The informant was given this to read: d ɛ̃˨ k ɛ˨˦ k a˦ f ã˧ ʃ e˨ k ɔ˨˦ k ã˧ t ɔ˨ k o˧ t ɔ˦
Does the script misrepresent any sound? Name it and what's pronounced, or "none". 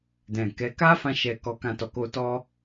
e˨ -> ɛ˨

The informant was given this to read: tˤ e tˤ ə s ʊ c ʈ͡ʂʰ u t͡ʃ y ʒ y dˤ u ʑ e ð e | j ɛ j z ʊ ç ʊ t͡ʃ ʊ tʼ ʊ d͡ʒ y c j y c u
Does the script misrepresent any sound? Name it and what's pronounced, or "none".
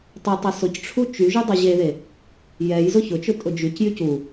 none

